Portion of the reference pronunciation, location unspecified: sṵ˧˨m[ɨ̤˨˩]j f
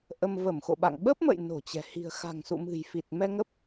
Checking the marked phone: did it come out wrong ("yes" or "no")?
no